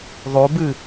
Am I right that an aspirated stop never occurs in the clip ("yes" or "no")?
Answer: yes